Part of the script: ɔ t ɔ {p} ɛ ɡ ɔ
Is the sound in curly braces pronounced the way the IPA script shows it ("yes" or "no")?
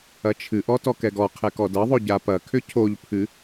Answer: no